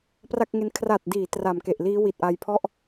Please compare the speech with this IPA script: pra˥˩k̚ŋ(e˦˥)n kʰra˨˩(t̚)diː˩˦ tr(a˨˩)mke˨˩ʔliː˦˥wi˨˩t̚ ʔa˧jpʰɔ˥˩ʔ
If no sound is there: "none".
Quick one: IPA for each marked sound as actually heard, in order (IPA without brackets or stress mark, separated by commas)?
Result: e˦˥, t̚, a˨˩